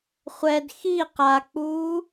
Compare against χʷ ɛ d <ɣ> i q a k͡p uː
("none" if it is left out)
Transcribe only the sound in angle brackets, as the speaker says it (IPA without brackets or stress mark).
x